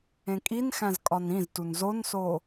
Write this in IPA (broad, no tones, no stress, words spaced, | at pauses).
ẽkʼinxæ̃z kʼɒnĩztun zonso